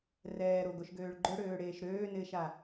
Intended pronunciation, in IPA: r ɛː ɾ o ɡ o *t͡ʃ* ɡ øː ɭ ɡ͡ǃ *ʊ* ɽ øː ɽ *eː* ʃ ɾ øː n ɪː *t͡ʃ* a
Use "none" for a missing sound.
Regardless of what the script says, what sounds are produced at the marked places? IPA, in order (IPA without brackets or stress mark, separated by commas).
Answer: ʃ, ʊ, eː, ʃ